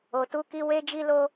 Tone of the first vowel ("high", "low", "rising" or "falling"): low